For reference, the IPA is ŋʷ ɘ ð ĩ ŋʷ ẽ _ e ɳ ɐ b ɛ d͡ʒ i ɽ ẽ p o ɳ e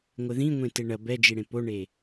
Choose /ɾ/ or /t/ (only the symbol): t